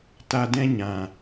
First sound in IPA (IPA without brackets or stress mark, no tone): t